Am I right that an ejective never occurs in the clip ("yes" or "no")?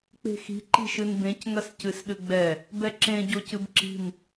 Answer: yes